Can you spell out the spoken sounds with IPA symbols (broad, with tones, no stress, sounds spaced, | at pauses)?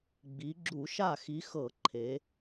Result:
ɡ͡b i˨˦ ɡ͡ǁ u˧˩˧ ʃ a˥˩ x i˨˦ x ɤ˧˩˧ ǃʰ e˨˦